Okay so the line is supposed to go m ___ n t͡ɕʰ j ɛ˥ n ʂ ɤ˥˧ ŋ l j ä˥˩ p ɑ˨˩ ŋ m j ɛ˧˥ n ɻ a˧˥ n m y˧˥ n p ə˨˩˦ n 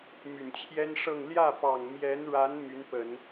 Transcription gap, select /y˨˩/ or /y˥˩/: y˨˩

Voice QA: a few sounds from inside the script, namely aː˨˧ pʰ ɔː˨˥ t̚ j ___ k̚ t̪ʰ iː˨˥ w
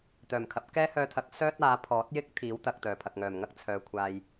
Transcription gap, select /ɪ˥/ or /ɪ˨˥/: ɪ˥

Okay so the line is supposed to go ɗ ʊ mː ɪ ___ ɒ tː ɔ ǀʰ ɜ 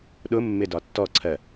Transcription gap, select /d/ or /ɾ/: d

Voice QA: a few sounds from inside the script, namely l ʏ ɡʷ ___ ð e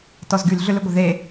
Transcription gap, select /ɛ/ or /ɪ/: ɪ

